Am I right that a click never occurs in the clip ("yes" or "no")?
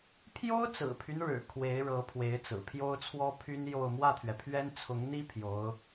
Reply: yes